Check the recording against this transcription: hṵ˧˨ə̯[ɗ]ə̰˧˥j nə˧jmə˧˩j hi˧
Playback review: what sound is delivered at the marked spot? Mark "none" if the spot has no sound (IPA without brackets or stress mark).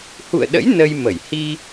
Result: ɗ